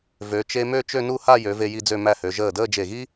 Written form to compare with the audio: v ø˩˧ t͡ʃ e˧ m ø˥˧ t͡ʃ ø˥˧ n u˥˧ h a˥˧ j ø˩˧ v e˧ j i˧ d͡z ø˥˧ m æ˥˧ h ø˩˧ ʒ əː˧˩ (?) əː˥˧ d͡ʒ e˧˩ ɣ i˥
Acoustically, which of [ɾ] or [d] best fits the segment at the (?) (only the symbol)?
d